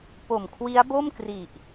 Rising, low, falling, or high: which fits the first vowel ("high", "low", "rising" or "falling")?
low